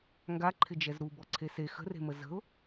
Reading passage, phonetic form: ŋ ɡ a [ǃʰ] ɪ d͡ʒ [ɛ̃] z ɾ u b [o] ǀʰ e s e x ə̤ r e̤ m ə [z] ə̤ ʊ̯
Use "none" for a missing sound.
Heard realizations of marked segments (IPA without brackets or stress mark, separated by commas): ǃʰ, ɛ, ɔ, z